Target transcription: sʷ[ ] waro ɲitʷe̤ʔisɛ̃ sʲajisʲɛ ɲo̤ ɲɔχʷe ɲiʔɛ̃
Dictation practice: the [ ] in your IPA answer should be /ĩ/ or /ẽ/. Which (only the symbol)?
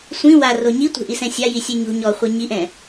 ĩ